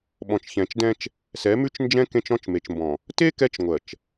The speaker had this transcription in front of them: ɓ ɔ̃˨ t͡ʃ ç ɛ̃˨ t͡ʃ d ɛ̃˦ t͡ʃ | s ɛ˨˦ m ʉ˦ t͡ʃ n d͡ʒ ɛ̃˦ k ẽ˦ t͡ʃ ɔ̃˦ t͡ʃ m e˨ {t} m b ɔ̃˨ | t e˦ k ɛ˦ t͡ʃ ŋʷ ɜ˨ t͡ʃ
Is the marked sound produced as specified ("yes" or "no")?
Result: no